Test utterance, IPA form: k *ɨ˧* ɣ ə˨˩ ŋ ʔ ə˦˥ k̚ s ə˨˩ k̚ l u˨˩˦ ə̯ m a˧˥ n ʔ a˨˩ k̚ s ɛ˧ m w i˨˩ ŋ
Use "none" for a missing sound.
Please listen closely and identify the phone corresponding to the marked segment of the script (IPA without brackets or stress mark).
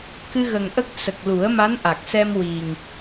ɨ˧